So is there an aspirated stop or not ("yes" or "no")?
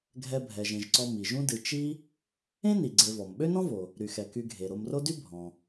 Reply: no